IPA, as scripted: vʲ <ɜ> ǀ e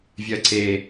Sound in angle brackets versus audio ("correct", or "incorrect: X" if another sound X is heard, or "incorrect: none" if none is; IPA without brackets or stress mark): correct